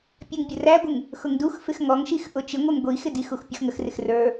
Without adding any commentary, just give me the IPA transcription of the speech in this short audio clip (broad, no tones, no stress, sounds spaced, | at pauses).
pʲ ɛ ŋ bʲ ʊ r æ ɡʷ ɪ ŋ | x ʊ ŋ d u x f ɪ x ŋ ɔ ŋ ʃ i x ʔ ʊ t͡ʃ ɪ ŋʷ ɛ ŋ ɡʷ i x ɪ d i x u x pʲ ʊ x ŋ ə x r ɪ x r ə˞